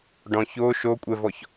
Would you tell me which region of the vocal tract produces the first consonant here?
retroflex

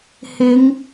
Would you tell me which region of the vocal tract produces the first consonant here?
throat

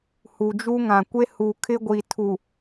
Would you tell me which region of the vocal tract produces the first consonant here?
throat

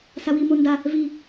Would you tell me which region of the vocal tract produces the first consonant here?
tongue tip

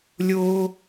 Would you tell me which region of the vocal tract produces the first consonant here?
tongue tip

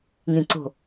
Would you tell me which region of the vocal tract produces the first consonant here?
velum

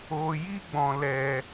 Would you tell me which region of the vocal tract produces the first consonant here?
palate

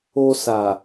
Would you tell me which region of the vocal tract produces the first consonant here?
tongue tip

